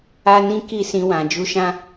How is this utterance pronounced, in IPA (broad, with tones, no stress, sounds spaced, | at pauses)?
a˦ n ĩ˦ k i˦˨ s ĩ˧ w ã˨ d͡ʒ u˧ ʃ ã˦